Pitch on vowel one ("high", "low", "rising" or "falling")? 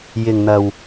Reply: low